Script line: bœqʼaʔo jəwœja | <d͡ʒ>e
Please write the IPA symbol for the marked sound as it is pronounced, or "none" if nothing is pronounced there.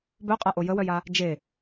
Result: d͡ʒ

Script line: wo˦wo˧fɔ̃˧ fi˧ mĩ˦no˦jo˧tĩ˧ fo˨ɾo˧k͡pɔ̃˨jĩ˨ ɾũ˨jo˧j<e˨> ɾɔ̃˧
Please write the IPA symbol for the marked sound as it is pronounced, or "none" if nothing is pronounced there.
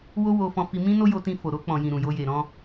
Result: e˨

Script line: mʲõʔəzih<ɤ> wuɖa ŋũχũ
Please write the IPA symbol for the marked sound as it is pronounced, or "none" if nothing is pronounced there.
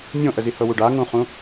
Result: ɤ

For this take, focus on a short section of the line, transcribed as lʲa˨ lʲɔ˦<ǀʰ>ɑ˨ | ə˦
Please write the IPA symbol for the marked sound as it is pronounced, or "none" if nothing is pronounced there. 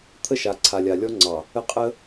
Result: ŋ͡ǀ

